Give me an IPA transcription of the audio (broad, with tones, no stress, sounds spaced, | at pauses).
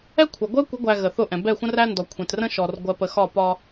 ɛ˦ kʷʰ ɜ˨ ɡʷ ɜ˦ kʷ ə˨˦ ɡʷ æ˨ ɣ ə˨ θ ʊ˦˨ ʔ ɛ̃˨ b ɛ˦˨ xʷ ə̃˦ r æ˦ n d ɔ˨ kʷʰ ɛ̃˨ t r ə̃˦ ʃ ɔ˨ r ɡʷ ɜ˨ p ə˨ x ɒ˦˨ p ɒ˦